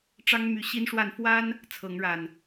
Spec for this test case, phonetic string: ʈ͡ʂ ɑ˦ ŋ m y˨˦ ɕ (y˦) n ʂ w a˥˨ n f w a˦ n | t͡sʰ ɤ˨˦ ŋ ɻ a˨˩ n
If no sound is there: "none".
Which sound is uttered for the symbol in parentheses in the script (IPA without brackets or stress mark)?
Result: i˦